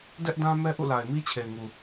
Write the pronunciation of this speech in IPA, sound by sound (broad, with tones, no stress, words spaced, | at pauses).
dɛ˦ʔdã˦ mɛ˦ʔṵ˦˨la˨ɪ̯mi˦ t͡ɕʰe˨ɪ̯ŋu˨